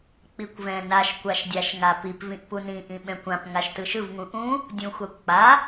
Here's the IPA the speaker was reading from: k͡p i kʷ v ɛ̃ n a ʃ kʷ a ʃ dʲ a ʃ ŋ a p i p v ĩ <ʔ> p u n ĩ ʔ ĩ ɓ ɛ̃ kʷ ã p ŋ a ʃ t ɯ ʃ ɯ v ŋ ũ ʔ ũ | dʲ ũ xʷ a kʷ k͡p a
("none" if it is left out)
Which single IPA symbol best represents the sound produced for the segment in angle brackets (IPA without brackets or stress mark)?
ʔ